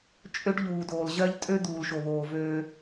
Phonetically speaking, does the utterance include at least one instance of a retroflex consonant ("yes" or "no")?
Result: yes